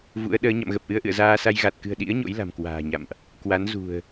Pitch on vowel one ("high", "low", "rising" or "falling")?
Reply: rising